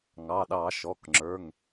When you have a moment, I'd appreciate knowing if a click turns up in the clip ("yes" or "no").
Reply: yes